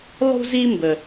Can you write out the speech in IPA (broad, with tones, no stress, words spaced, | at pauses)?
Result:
lˠṳ˥zi˥ mbə˧